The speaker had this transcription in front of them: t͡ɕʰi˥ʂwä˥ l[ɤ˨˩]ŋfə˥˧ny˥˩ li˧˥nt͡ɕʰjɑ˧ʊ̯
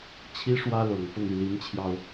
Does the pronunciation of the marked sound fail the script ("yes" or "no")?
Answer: no